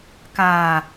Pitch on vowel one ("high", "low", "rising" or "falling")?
low